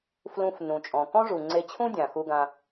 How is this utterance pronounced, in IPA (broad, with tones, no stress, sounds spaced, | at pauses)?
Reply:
f l ũ˧ f n ũ˩ t͡ʃʼ ɔ̃˩ k ɔ̃˥ ʐ u˩ ŋ͡ǀ e˧ t͡ɕʰ ũ˥ dʲ ã˩ x u˧ ɡ ã˧